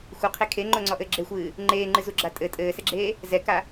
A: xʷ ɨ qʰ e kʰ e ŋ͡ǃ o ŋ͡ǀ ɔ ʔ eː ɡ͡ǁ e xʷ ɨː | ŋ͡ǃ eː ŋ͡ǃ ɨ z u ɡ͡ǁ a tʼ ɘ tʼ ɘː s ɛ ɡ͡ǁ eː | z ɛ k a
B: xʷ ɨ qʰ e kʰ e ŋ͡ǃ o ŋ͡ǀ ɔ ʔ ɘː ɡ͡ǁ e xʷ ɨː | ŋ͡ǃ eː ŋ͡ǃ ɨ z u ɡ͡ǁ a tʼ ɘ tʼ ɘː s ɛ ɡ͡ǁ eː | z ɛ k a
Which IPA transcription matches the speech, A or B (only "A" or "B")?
B